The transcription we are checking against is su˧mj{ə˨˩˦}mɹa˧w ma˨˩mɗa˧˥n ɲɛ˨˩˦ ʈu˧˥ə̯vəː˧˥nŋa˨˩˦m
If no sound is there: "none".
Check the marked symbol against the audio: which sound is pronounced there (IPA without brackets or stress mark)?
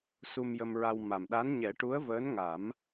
ə˧